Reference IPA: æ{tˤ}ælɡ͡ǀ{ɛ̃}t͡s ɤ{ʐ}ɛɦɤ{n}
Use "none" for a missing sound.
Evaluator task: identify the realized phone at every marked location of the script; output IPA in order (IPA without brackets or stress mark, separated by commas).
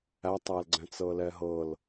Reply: tˤ, ɛ̃, l, l